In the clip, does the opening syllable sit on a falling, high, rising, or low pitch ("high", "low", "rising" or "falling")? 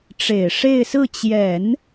low